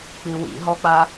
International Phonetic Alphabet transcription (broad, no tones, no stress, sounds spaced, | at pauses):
k͡p i w ḭ ɦ ɔ k͡p a